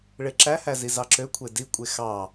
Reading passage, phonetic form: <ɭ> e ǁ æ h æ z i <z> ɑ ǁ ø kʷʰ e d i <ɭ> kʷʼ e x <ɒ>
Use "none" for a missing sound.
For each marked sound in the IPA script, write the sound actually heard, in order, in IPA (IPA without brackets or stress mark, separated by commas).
ɭ, z, none, ɑ